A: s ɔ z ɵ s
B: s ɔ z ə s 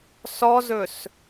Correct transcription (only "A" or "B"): A